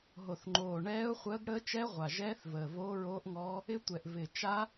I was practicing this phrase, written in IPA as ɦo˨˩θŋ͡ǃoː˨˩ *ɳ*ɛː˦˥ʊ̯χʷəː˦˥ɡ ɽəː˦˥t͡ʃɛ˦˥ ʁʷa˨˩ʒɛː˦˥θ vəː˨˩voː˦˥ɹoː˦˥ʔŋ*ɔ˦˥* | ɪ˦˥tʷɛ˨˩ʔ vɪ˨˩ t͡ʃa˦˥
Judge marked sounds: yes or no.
yes, yes

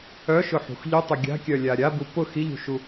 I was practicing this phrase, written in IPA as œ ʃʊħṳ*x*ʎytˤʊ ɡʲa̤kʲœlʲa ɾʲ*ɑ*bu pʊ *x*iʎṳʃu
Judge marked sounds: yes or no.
yes, no, yes

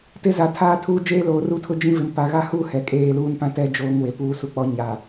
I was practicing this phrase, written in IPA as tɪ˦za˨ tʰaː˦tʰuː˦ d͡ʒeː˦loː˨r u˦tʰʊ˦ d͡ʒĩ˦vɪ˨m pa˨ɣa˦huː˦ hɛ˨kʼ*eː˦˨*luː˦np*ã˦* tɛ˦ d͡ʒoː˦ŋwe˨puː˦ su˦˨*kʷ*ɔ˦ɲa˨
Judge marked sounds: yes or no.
yes, yes, no

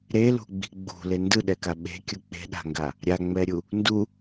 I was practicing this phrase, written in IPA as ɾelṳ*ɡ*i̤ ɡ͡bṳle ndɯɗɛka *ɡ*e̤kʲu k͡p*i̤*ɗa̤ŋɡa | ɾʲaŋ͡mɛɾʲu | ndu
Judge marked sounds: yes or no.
no, no, no

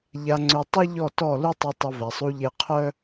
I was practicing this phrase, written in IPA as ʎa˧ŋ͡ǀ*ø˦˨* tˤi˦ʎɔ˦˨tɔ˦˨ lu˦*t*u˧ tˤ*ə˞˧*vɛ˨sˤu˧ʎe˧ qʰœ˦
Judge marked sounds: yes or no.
no, no, no

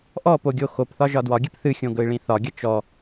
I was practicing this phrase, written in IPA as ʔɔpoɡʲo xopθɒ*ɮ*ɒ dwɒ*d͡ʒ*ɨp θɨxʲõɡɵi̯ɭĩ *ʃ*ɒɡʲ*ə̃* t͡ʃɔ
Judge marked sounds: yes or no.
no, no, no, no

